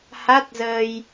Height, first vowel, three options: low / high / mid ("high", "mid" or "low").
low